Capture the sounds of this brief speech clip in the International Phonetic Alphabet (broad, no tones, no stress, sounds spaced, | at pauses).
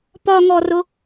p ɒ ŋ ɔ r ʊ